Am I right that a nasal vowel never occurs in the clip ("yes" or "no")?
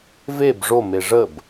yes